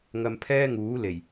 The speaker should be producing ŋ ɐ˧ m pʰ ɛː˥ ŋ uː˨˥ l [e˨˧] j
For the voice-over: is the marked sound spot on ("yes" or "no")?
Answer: no